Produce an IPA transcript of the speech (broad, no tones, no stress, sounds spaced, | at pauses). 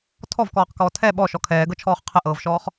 tʰ ɔ v k ɔː q k ɔː tʰ ɛ ɓ ɔ ʃ ɔ kʰ ɛː ɡ ɤ t͡ʃʰ ɔː χ qʰ ə ʔ ɤː v ʃ ɔː χ